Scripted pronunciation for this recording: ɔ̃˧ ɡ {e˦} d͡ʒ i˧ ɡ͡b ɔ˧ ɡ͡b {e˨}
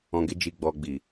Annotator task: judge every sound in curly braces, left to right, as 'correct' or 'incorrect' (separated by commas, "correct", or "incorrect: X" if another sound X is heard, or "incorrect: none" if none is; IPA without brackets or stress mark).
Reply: correct, incorrect: i˨